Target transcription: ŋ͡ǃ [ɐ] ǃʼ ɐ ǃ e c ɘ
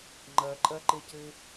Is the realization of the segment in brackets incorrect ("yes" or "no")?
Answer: no